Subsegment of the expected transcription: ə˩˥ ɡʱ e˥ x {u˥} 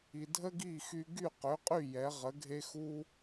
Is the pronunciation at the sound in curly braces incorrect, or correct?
correct